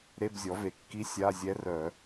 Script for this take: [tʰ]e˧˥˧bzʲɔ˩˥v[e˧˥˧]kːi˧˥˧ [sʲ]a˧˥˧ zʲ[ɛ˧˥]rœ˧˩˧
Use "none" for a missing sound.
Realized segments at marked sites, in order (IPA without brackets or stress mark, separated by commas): ɾ, e˩˥, sʲ, ɛ˧˥